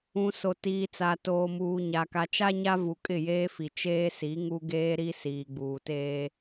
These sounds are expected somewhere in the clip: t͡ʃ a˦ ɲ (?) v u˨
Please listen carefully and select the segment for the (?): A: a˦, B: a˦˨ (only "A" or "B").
A